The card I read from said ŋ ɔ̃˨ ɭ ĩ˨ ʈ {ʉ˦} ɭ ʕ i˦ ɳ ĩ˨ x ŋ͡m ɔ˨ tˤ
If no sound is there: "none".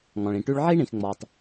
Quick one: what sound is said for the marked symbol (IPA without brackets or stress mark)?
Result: ʉ˦